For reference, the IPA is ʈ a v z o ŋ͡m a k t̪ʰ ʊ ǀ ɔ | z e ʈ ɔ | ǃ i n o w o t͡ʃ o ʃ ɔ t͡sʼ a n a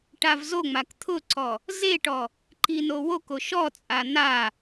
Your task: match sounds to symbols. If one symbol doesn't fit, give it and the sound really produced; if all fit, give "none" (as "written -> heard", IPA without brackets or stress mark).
t͡ʃ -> k